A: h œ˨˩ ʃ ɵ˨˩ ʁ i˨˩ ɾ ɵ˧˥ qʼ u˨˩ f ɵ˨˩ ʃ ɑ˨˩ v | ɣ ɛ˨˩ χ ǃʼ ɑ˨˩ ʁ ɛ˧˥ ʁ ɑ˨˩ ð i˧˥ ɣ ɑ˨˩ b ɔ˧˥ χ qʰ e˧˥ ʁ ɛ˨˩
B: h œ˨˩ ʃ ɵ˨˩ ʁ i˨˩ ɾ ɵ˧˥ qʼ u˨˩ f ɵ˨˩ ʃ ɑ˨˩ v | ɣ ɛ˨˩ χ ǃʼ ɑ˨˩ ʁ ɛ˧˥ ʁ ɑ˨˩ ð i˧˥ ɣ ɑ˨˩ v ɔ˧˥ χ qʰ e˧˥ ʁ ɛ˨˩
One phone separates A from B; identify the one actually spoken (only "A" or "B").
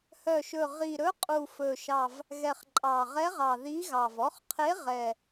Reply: B